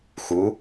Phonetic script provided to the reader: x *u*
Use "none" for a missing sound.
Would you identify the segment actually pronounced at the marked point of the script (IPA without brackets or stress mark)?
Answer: u